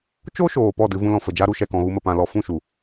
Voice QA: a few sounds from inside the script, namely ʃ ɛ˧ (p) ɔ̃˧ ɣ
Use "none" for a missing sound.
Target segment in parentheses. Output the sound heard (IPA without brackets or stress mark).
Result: k